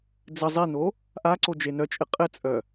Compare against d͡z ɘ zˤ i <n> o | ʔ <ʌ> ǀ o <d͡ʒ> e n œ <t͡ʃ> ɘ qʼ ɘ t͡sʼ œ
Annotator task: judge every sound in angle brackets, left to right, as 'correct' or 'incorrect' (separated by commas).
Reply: correct, incorrect, correct, incorrect